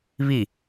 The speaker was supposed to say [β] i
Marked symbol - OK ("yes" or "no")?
yes